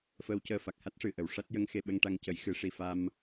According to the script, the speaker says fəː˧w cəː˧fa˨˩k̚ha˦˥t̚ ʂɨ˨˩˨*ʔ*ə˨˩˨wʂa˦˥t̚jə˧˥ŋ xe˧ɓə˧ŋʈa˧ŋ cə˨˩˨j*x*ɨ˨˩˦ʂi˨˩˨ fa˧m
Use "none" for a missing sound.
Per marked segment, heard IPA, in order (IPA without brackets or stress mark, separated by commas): ʔ, x